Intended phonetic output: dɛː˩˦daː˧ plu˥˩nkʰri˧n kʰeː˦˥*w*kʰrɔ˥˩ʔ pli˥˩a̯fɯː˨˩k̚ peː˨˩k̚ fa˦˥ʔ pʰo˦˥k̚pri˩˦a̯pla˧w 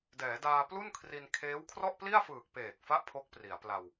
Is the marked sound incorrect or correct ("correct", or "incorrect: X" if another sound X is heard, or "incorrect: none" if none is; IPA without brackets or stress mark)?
correct